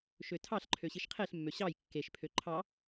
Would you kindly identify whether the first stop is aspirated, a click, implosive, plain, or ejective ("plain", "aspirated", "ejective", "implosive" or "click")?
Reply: aspirated